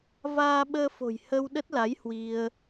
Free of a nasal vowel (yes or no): yes